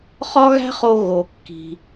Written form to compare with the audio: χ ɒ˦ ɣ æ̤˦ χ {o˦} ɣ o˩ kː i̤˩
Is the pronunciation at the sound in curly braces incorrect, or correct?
incorrect: o˨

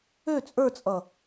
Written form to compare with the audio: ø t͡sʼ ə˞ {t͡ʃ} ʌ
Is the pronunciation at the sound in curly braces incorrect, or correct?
incorrect: t͡sʼ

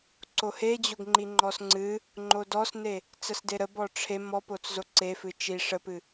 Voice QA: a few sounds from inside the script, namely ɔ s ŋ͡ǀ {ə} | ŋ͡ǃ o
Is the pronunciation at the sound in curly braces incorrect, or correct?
incorrect: ɨ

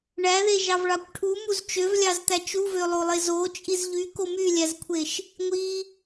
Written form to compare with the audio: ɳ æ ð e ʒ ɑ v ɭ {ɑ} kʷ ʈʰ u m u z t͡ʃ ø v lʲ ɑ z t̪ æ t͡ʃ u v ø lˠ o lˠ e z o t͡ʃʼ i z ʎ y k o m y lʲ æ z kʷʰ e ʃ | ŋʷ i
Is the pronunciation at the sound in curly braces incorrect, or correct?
correct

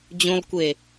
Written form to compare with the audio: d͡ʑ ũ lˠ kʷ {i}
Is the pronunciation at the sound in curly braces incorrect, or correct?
incorrect: e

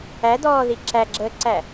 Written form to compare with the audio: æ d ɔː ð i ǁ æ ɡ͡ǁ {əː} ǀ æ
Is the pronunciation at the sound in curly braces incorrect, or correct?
correct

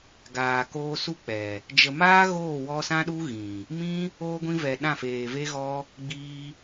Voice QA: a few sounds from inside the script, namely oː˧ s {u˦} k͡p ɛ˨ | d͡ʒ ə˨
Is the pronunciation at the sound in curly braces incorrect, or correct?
correct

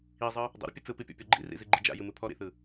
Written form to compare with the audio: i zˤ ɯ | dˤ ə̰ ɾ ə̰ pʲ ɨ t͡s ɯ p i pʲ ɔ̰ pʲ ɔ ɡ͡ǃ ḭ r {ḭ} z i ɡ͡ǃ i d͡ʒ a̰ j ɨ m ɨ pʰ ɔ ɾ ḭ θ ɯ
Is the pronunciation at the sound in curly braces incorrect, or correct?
correct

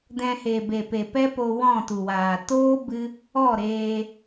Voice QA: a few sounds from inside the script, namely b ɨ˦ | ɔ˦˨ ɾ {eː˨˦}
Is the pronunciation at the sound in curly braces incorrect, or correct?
incorrect: eː˧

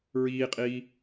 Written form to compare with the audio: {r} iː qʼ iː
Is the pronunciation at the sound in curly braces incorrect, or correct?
incorrect: ɹ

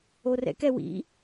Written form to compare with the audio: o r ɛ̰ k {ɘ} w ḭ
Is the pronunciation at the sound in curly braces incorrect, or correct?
incorrect: ɛ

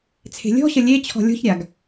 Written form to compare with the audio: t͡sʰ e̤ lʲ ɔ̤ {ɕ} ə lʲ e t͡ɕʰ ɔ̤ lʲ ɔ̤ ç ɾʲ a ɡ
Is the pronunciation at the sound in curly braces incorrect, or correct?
correct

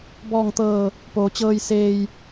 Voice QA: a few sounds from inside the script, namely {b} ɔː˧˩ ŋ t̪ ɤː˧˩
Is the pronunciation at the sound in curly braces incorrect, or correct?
correct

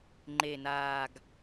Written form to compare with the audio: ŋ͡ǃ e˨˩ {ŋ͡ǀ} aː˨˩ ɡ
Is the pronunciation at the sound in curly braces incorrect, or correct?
incorrect: n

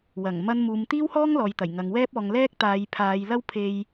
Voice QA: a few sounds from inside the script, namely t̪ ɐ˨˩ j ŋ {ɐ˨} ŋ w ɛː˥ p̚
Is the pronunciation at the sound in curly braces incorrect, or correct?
correct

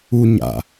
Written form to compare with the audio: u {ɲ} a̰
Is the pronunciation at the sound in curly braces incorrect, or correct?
correct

